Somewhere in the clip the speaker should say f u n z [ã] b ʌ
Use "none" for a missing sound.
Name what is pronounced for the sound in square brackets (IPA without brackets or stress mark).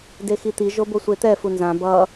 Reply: ã